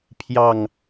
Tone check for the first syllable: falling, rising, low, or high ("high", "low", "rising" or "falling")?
low